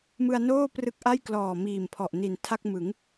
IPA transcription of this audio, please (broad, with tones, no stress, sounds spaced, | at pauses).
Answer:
m ɯ˧ a̯ n oː˥˩ p r ɯ˦˥ k̚ ʔ a˥˩ j k l ɔː˨˩ m iː˨˩ m pʰ ɔ˨˩ ʔ n i˨˩ n tʰ a˥˩ k̚ m ɯ˩˦ ŋ